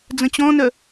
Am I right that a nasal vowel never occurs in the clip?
no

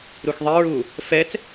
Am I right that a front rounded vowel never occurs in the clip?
yes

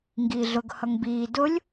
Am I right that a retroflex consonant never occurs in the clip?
yes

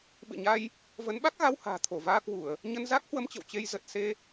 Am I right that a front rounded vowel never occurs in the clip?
yes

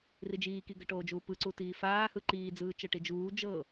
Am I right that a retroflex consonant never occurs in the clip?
no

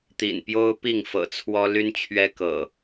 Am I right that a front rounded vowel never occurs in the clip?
no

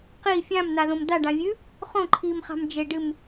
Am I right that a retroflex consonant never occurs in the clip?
no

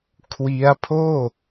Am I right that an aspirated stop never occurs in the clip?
no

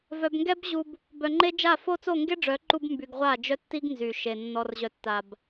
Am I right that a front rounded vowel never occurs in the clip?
no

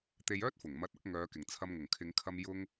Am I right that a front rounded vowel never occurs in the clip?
no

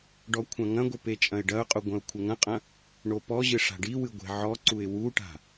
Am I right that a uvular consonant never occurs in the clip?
no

